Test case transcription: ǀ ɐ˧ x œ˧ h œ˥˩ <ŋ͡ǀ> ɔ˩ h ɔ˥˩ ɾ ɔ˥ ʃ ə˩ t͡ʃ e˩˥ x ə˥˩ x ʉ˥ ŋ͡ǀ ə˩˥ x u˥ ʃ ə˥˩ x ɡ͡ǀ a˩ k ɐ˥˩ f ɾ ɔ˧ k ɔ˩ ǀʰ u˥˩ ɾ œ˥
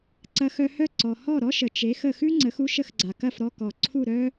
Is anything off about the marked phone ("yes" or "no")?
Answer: yes